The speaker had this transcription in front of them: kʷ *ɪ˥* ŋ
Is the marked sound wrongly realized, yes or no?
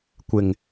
yes